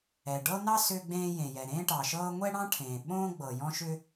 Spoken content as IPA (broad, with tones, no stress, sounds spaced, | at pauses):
ɛ˩ ɖ ɤ˥ n ɑ˥ s ʏː˥ ɡ͡b ẽː˥ j ẽ˩ j ɛ˩ ɾ ẽː˥ ʈ ɑ˩ ʃ ɤː˥ ŋʷ ɛ˥ ɽ ɑ̃˥ ʈʰ ẽː˩ ɓ õː˥ ɡ͡b ɤ˩ j ɔ̃˥ ʃ ʏ˥